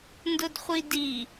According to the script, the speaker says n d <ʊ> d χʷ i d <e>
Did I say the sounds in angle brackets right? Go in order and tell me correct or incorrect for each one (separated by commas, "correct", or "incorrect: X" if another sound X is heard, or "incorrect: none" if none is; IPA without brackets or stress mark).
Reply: correct, incorrect: i